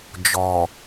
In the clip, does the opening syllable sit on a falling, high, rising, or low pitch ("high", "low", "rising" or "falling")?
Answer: low